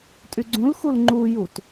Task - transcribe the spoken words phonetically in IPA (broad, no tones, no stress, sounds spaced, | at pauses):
tʼ y ɡ͡ǀ ũ l x u l ŋ͡ǃ u j u t